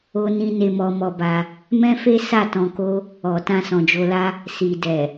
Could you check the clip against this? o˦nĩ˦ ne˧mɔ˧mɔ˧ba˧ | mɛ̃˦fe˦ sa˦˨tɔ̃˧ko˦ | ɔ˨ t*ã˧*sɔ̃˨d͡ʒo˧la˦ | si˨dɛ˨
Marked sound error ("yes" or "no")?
no